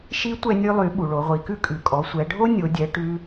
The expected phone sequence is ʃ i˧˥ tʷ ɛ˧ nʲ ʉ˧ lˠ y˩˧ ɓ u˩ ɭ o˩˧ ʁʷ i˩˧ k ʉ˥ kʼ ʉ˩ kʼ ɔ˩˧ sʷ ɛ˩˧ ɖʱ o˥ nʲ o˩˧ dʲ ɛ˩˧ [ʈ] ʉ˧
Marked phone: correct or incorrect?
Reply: correct